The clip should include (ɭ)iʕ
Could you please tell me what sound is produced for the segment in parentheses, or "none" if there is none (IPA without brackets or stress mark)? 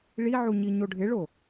ɭ